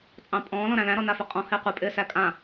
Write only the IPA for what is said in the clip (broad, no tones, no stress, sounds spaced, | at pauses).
t͡sʼ ɑ̃ pʼ ɔ̃ː l ɔ̃ ɾ æ̃ l æ̃ ɾ ɔ n a f e qʼ ɔ̃ h ɪː qʷ ɛ pʼ ɪː s æ kʼ ã